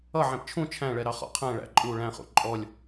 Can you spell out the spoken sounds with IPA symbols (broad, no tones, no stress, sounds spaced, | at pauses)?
ʌ ʕ ɛ̃ p t͡ʃʰ ũ t͡ʃʰ æ̃ ɭ ɛ ɾ ɑ χ ɔ̰ qʰ æ̃ ɭ æ̰ ǃʼ u ɭ æ̃ χ ṵ ǃʼ ɔ lʲ